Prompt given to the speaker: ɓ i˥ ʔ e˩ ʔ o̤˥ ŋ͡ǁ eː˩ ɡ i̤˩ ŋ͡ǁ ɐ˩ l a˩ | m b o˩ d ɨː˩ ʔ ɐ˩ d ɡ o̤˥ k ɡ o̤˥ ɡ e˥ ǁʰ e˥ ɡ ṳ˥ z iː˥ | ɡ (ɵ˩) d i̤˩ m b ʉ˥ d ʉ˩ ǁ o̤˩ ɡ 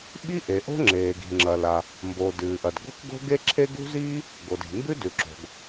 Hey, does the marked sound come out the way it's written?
no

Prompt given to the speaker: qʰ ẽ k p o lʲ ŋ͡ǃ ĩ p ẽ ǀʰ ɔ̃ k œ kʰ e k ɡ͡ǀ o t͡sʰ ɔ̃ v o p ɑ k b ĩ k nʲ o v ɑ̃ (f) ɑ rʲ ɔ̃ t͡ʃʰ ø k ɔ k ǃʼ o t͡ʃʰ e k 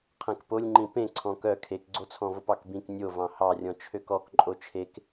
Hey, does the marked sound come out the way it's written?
no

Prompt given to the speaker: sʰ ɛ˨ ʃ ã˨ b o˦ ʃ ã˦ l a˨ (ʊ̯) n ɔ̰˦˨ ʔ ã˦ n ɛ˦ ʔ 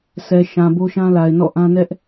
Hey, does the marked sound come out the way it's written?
no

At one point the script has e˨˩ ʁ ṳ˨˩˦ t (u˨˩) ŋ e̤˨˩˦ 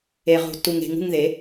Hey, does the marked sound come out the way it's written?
yes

